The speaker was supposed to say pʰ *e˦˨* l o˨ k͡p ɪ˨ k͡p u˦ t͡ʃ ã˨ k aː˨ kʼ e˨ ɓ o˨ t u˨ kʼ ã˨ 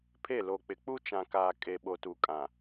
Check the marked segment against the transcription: correct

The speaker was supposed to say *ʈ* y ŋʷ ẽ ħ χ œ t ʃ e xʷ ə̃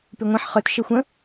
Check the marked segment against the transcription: incorrect: p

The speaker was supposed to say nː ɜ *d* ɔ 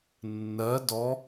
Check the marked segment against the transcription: correct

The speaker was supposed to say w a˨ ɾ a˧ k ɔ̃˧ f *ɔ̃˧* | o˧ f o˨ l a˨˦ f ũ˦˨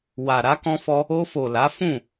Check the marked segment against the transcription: incorrect: ɔ˧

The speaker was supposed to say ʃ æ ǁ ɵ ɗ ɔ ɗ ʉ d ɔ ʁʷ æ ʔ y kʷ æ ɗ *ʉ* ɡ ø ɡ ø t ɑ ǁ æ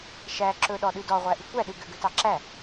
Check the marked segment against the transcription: correct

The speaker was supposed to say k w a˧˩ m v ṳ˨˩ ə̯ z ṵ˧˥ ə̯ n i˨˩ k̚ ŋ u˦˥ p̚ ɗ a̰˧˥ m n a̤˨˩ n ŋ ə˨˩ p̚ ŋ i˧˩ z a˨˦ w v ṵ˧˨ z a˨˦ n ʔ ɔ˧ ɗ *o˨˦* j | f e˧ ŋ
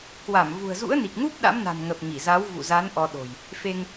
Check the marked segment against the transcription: incorrect: o̤˨˩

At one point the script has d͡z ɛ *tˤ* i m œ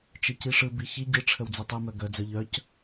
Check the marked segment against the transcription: correct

